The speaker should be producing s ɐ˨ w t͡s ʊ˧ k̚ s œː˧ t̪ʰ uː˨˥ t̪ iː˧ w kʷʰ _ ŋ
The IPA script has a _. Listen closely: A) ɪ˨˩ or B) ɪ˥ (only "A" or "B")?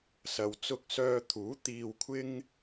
B